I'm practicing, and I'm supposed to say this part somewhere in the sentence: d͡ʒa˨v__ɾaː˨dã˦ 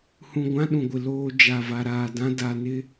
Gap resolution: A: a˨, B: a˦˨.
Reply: A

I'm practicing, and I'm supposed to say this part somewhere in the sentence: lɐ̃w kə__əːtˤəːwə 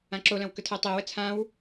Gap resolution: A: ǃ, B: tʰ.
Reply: B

